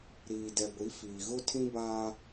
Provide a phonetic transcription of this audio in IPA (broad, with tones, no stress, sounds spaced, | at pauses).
ɾ iː˨ d ɛ˨ ɡʷ i˨˦ f iː˨ ɣ ʊ˦ tʰ ĩ˦ b aː˦